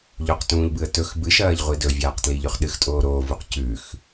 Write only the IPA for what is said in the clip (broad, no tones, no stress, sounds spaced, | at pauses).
ʎ o q t ũː ʎ b ɨ ə̯ t ɵ x b ɨ ʃ ɐː ʎ ʁʷ i d ɵ vʲ aː q t l i ʎ ʉ χ ɗ ɨ x tʼ oː ɾ oː v u q c ʉ x